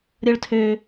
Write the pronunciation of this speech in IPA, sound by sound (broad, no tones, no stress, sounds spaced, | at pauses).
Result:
ɾʲ ʌ ɭ tʰ ø